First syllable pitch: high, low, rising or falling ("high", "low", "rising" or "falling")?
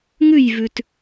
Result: falling